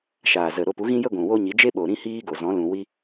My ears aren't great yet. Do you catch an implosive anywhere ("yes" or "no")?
yes